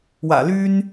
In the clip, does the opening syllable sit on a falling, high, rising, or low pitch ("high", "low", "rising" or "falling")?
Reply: low